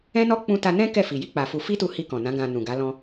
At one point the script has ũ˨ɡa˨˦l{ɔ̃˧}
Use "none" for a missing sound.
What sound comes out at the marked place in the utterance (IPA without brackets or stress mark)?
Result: ɔ̃˧